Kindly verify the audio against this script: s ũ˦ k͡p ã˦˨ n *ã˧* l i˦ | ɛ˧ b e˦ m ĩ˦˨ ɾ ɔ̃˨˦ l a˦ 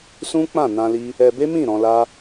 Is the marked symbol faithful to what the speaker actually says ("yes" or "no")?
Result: yes